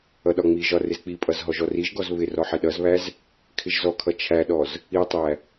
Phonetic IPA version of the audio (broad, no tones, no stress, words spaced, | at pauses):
ʌɗɒŋ͡miʒɒ rɪzk͡pipʼʌz ɦɔʒɔriʒɡɔz βɪ rɔħɪɗʌzβæz | kʰɪʒzɔkʰʌ t͡ʃʰæɗɔz | itˤæ